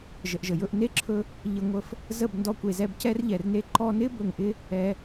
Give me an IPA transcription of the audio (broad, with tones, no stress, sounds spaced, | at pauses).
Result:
ʒ ə˨ ʔ ʒ ə˨ j ɵ˧ ʔ n e˦ ǁʰ ɵ˧ | ʎ ə˧ ŋʷ ə˧ f | z ə˦˨ b n d ɔ˧ kʷ e˨ z ɛ˧ b c ɛ˦ r ʎ ɛ˨ r n e˦ ǃ ɔ˧ n ɪ˦ b ɵ˨ ŋ ʔ ɪ˧ | ɛ˧